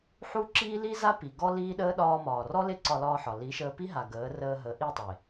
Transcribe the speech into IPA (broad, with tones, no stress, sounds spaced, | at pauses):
ħ u˦ ǁ iː˦ l i˦ z a˦ p i˨ ɡ ɔ˦ l iː˦ ɗ əː˦ ɗ ɒː˧ m ɒː˨ r ɔ˦ l e˦ ǀ ɒ˧ l ɒː˧ ħ ɒ˨ l i˨˦ ʃ əː˧ p i˦ ɦ a˨ ɡ əː˨˦ r əː˧ ɦ ə˨˦ ʔ i˦˨ tˤ e˨